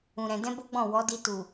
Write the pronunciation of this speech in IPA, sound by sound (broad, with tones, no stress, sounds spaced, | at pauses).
ũ˨ ɾ ɛ̃˨ d ɛ̃˧ b o˦ ɡ͡b ɔ̃˦˨ w ɔ˨˦ d i˧ t u˨